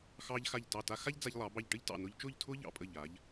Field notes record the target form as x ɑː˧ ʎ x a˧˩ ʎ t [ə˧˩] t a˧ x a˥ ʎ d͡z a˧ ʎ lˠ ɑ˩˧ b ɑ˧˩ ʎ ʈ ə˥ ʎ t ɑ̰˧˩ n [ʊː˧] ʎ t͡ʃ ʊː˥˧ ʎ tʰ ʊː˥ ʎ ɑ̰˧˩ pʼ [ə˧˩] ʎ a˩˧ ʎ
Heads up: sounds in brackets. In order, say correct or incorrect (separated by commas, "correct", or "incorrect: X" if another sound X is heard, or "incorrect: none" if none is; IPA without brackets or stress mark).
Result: incorrect: ɑ˧˩, correct, correct